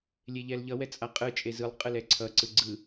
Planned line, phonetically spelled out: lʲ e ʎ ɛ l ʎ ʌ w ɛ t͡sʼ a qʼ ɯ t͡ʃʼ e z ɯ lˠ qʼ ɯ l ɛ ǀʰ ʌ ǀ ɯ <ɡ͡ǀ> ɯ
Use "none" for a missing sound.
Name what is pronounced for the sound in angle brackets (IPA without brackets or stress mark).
ɡ͡ǀ